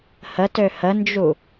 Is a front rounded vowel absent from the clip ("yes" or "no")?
no